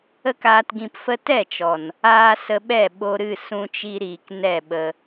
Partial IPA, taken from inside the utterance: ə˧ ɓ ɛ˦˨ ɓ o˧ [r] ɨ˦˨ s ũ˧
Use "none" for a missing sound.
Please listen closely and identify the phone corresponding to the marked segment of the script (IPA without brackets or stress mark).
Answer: ɾ